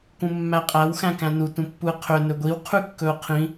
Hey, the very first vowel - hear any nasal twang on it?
yes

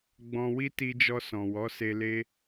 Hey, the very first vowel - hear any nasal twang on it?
yes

